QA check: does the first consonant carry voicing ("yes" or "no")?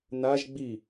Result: yes